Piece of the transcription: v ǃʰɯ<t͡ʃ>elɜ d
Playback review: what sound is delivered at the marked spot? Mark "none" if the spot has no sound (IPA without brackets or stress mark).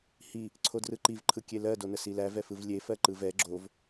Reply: kʲ